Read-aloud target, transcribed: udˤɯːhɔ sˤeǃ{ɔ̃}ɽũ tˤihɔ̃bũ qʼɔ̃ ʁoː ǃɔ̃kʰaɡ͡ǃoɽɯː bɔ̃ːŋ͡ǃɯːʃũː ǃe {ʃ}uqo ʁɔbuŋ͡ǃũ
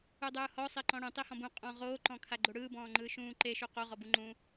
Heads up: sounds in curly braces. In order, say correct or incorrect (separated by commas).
correct, correct